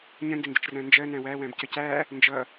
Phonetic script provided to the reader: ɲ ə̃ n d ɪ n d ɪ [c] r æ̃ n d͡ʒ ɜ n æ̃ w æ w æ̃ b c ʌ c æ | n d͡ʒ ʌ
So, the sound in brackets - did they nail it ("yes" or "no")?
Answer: no